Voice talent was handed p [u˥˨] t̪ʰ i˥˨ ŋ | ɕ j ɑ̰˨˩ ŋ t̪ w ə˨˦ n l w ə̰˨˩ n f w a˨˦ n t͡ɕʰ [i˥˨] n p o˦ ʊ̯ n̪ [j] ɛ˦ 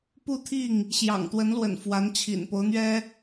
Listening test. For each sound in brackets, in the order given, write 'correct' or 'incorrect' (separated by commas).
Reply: correct, incorrect, incorrect